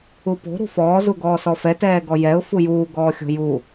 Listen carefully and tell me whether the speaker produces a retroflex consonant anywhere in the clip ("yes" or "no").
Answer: no